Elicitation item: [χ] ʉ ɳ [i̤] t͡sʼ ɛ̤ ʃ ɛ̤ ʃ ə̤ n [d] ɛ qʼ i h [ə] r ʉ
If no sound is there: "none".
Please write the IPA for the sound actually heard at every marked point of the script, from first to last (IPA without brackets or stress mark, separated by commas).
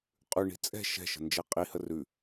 qʼ, i̤, d͡ʒ, ə